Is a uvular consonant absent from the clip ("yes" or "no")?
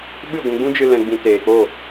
yes